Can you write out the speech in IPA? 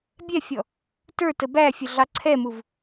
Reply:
bʲ ɛ fʲ ɔ | t ə˞ t ə b æ fʲ ə ɮ ɑ ǀʰ ɛ m u v

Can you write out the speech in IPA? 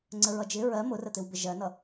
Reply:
ŋ͡ǀ ə ɹ ʌ d͡ʒ ɪ ɹ ɜ m ʊ r ə t̪ ɪ w b ɪ ʒ ɜ n ʌ

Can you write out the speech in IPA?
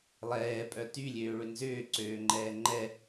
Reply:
lˠ ɛː pʼ œ t y lʲ øː ɭ ʏ n z ʏː ǀ øː ŋ͡ǃ ɛː ŋ͡ǃ ɛ

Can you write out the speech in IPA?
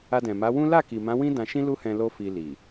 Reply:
a˧ d ɛ̃˨ m a˨˦ w ũ˦ l a˦˨ k i˨ m ã˨˦ w ĩ˦ d ã˧ ʃ ĩ˦ l u˦ h ɛ̃˧ l o˦ f i˧ l i˨

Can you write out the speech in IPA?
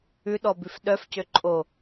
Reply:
ʉ ɗ ɔ b ʉ f ɗ œ f c ø ǃʼ o

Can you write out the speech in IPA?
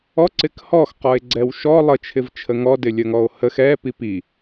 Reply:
ɔ ǀ ɪ k h ɔ x q ɔ e̯ ɡ͡ǀ ɛ w ʃ ɔ lˠ ə t͡ʃʰ ɪ v t͡ʃʰ ə ŋ ɔ d ɪ lʲ ə ŋ ɔ o̯ h ə x ɛ p i p i

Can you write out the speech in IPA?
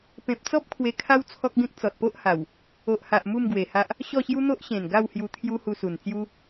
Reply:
p ẽ˨ p̚ t͡s ɔ˦ p̚ kʰ w e˧ kʰ a˦ w t͡sʰ ɔ˦ k̚ ɡ ẽ˦ k̚ t͡s ɔ˨ t̚ p o˦ ʔ h a˨˩ w | o˨ ʔ h a˨ ʔ m u˥˧ m ɡ w e˨˩ h a˦ ʔ | ɕ ɔ˥˧ ɕ j u˦ n̪ o˦ ʔ ɕ ẽ˨˩ n ɡ a˥˧ w h j u˧ t̪ʰ j u˦ h u˧ s u˨˩ n t͡s j u˦

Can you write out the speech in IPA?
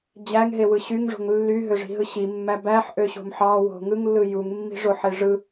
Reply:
d͡ʑ æ ŋ ɦ e w ɯ ɕ y ŋ ʐ o̤ ŋ lː y ɦ ø ʐ i̤ ɦ ɯ ɕ i mː æ b æ ħ ʔ ø ɕ o̤ m ħ ɑ w o̤ ŋ ɯ ŋ lː ɯ j u ŋ mː i̤ ʐ o ħ e ʐ ɯ

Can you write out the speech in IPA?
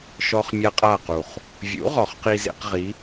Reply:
ʃ ɔ˦ χ mʲ a˦ qʼ a˥˨ q u˨˩ χ | vʲ ṵ˨˥ ʁ ɔ˨˩ χ q i˦ z ḛ˦ q ʁ i˨˥

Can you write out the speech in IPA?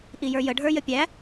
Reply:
ʔ i j ə˞ j ə ɖʱ ə˞ j ə pʲ æ

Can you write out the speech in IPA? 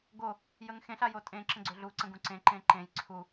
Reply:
ɡ o | j ə ŋ x ẽ ɬ a j o tʼ ẽ ǁ ə̃ ɡ͡ǀ ø ɮ u ǀ ə̃ ɡ ũ ǀ ẽ ǃ ẽ ǃ ẽ j ǀʰ u

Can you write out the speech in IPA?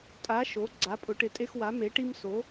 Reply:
tʼ a˩˧ ʃ o˩˧ ɡ͡ǀ a˩˧ pʼ ʊ˩˧ ʈ ɪ˩˧ tʼ e˧ x w a˩˧ m e˩˧ ʈ i˧ m s o˩˧

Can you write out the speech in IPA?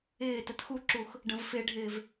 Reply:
ɪː t ə t x u ǁ u x | ɖ ə̃ v f ɪ ɖʱ ɪː v

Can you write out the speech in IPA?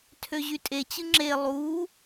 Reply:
tʰ ø ʑ y tʼ e t͡ɕ ɯ ŋ͡ǁ e lˠ u

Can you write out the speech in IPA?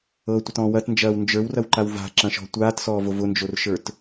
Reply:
ɤ tʷ ə t ɔ̃ː w ɐ t n d͡ʒ ɐː w n d͡ʒ ə˞ w r ɐ w ǃ a w v a̤ ǁ ɐ̃ ʃ ɔ̤ tʷ aː t s ɔː v o v ʊ n d͡ʒ o r ʃ ə˞ t

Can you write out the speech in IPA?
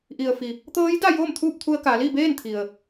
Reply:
ʔ i˩ ə̯ f i˩ | t̪ ɤː˧˥ j d a˥˨ j oː˥˨ m t̪ʰ uː˥˨ p̚ t̪ʰ u˧ ə̯ k a˩˧ l i˥˨ b eː˥˨ n t̪ʰ i˩ ə̯

